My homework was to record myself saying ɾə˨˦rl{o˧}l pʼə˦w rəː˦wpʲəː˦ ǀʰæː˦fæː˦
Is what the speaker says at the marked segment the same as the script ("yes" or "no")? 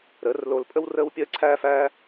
yes